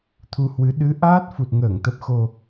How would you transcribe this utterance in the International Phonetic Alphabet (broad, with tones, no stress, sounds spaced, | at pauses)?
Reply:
t̪ʰ u˧ h w ɨ˨˦ ɗ ɨ˨˦ ʔ aː˦˥ t̚ f u˨˩ t̚ ŋ əː˧˩ ŋ t̪ ə˨˩ p̚ x o˨˩